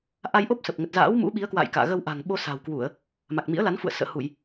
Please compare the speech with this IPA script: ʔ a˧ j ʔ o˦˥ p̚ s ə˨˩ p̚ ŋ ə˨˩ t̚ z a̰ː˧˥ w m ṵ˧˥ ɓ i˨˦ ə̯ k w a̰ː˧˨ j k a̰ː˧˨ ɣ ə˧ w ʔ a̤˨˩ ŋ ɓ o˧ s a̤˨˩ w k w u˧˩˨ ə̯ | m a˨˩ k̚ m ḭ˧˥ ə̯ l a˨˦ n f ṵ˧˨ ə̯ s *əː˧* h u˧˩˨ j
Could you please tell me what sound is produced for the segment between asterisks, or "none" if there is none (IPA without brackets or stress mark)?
ə̰ː˧˨